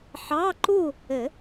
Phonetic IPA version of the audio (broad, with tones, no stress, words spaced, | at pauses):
ħɑ˧˥˧ ǃu˥˨ | ɘ˨˩˦